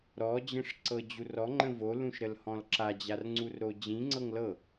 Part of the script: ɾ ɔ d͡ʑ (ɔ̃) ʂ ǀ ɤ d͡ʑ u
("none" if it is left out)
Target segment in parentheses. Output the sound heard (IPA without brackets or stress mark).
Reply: ə̃